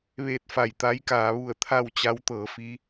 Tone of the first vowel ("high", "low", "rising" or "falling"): falling